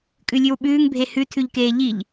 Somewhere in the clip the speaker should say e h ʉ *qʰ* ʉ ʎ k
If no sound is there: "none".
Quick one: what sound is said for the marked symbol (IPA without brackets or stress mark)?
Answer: tʰ